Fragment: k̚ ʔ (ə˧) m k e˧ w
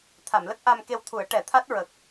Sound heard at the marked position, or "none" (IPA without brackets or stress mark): a˧